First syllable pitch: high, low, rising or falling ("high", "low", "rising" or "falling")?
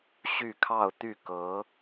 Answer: falling